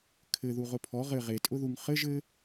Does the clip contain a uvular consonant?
yes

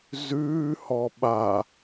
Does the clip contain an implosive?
yes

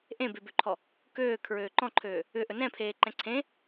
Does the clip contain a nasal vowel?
yes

